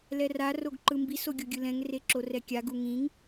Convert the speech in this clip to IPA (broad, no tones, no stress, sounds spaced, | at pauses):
l ɛ r a r o ɡ ǃ ɯ m b i s o ɡʲ o ɡʲ ɯ l ɛ̃ ŋ r e ǁ o r ɛ kʲ a ɡ u ŋ ĩ ŋ